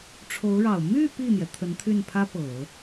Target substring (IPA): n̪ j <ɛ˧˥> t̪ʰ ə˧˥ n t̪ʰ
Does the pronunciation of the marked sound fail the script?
yes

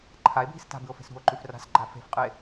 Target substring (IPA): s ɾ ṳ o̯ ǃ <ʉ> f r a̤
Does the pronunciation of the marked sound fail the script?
no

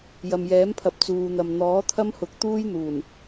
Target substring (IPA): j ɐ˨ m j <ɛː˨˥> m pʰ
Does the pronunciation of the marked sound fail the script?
no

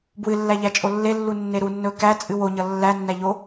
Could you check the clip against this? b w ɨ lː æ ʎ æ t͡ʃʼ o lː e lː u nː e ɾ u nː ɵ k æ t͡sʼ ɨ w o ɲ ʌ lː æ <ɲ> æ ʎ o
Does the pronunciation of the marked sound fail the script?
yes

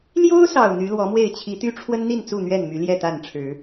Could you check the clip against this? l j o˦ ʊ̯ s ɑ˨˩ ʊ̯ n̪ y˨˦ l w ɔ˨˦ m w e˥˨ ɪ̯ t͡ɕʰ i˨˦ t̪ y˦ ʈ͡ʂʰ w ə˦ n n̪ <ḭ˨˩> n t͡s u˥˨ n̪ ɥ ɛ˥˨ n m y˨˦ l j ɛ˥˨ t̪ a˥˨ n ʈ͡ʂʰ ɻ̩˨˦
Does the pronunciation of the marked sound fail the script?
yes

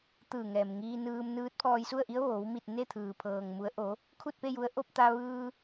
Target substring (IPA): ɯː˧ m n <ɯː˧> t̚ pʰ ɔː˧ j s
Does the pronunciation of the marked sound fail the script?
yes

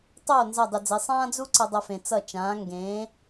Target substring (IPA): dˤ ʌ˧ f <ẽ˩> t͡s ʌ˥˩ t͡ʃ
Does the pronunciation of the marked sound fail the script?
no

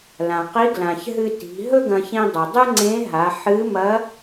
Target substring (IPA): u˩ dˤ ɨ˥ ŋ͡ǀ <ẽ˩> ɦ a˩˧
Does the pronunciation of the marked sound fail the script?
yes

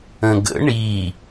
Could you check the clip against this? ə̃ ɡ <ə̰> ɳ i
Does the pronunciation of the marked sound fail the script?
no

